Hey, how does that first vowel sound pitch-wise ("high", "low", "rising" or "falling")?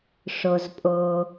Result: low